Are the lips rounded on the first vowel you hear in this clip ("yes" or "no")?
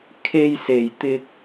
no